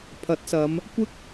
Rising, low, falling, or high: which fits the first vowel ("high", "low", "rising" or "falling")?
rising